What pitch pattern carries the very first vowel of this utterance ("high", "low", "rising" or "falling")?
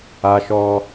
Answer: high